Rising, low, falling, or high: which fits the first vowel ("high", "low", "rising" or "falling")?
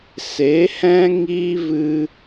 rising